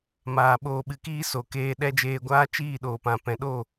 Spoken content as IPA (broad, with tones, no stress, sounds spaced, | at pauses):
m aː˧ ɓ oː˧ ɓ ɨ˧ k iː˦ s o˨ k eː˧ ɗ ɛ˦ d͡ʒ eː˧ ɡʷ aː˦ t͡ʃ iː˦˨ ɗ oː˨ p ã˨ p ɛ̃˨ ɗ o˦˨